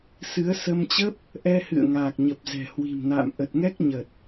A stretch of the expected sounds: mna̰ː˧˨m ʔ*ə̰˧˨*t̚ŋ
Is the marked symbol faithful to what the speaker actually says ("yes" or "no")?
no